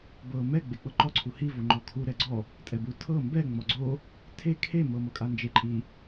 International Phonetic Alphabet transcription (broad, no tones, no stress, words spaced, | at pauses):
bɤ mɛ ɡ͡bek͡pɤǃɔ ǀʰuhi voŋ͡ǃɔkʰu ɾɛɡ͡ǀɔ | tʼɛbu tʰɤ mbɛ ŋ͡mɔɡ͡ǀo | tʰe kʰe mɤmɤkʼand͡ʒe ǃʼi